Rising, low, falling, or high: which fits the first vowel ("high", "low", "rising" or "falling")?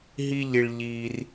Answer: high